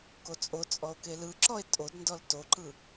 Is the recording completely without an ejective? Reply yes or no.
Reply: no